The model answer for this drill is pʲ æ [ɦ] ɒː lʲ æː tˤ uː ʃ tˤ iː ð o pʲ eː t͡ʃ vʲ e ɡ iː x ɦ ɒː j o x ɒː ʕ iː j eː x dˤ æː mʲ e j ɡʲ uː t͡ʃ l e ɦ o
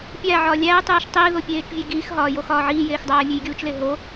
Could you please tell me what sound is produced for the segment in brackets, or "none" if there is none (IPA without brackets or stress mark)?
ʕ